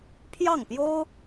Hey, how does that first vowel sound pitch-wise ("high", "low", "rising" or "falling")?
falling